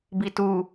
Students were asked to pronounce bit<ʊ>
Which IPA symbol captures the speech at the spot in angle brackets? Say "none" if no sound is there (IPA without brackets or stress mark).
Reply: u